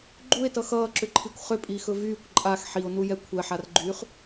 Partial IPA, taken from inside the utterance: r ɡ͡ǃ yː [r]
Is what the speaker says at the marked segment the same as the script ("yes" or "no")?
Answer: no